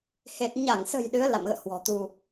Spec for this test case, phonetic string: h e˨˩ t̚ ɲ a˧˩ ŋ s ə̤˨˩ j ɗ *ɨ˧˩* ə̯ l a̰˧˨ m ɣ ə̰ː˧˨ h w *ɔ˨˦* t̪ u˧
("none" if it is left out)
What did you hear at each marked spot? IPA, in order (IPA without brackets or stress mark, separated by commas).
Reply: ɨ˨˦, ɔ̤˨˩